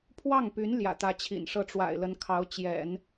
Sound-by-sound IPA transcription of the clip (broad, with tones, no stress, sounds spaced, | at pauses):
pʰ w ɑ˥˩ ŋ p y˧˥ n l j ä̰˨˩ t̪ ä˧˥ t͡ɕʰ ḭ˨˩ n ʂ ɤ˥˩ ʈ͡ʂ w a̰˨˩ ɪ̯ l ə˧˥ n kʰ ɑ˧˥ ʊ̯ t͡ɕ j ɛ̰˨˩˦ n